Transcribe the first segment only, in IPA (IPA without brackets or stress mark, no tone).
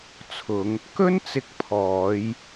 t͡sʰ